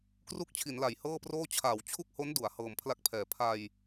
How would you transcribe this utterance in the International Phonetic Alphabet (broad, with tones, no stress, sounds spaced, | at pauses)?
k r u˥˩ k̚ t͡ɕʰ i˩˦ n l a˩˦ j h ɤː˥˩ p r oː˥˩ t͡ɕʰ aː˩˦ w t͡ɕʰ u˥˩ k̚ h o˦˥ n d u˩˦ a̯ h ɤː˨˩ m pʰ l a˦˥ k̚ pʰ ɛː˩˦ pʰ a˧ j